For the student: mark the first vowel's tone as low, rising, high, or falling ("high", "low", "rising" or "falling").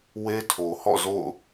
high